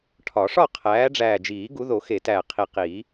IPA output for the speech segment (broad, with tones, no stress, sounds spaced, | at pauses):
ʈʰ ɒ˨˩˦ ʂ ɒ˥˨ qʰ æː˨˦ ɖ͡ʐ æː˨˩ d͡ʒ iː˨˩˦ ɡ u˨˦ ð o˨˩˦ x e˨˩˦ t æː˨˩ qʰ i˨˩ q iː˨˩˦